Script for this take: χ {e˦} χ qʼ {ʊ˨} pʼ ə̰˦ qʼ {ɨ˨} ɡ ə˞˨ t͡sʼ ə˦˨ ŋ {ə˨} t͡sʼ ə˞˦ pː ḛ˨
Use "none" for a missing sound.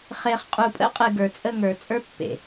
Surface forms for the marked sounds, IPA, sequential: e˨, u˨, ɨ˨, ə˞˨

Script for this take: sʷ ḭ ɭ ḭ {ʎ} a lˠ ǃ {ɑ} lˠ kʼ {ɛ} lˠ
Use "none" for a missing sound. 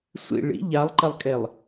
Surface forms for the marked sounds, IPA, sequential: ʎ, ɐ, ɛ

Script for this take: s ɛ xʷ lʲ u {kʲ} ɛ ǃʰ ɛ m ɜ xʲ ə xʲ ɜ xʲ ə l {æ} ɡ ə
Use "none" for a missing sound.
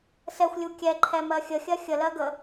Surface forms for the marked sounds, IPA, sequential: kʲ, ɜ

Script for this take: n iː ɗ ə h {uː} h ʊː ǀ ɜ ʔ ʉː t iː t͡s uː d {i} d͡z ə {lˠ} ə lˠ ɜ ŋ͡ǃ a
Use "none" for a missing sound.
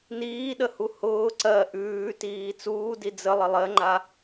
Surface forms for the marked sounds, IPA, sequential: u, i, lˠ

